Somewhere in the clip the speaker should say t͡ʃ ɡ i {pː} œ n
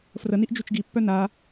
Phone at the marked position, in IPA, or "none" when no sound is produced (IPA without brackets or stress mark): pː